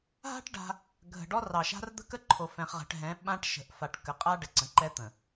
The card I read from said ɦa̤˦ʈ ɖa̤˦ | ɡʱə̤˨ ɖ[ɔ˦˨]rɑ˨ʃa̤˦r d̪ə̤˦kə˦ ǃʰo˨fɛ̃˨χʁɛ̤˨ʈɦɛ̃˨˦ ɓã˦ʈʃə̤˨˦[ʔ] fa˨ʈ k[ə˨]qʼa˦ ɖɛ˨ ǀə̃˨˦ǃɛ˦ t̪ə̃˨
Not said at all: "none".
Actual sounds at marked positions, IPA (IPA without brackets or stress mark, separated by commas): ɔ˦, ʔ, ə˨